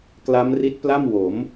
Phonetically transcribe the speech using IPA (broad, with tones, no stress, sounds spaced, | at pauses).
k l a˦˥ m r i˦˥ t̚ p l a˥˩ m w o˩˦ m